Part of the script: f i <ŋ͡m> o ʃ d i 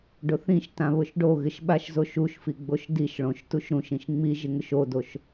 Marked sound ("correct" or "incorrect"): incorrect